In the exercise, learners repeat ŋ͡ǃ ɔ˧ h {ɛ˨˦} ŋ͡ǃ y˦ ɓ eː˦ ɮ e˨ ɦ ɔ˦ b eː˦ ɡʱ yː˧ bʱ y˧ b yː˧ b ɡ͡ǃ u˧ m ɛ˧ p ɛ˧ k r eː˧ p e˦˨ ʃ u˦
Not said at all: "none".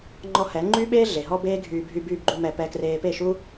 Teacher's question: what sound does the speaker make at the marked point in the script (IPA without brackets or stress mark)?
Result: ɛ˨˦